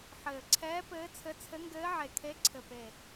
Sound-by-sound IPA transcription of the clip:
ħɘː˨˩ǀʰɛː˧˥ pɘː˧˥t͡sʰɘ˧˥ t͡sʰɘ˧˥ŋɡɘː˧˥ ʕe˨˩kʰe˧˥ ǀʰɘ˨˩pe˨˩

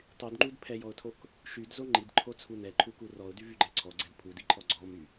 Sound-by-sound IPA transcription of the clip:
tˤydŋ͡ǃud pʰɛjɔʊ̯tʰok | ʃydzo ŋ͡ǃidǃʰot͡sʰu nɛǃʰuku rɔʊ̯dyvyɡ͡ǃɛ ǀʰɔɡ͡ǀɛd pʰudiǃʰɔ ɡ͡ǀɔmy

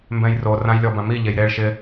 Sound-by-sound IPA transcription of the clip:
mbɛ̃jro rãjlʲɔbãmi ʎejɾeɭ ʃɪ

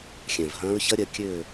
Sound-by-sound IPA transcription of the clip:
xʲɛ̃˨˩vɦɐ̃ː˦˥ɹ çɐ˦˥ɾʲɜ˩˧ kʲø˥˧

